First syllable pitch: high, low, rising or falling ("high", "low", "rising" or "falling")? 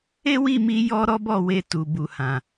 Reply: high